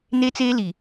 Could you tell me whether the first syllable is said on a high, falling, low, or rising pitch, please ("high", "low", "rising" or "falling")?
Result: high